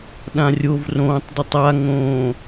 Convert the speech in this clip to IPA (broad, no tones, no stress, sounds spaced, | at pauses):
ɗ ã rʲ o v r õː tˤ d u tˤ a ŋ õː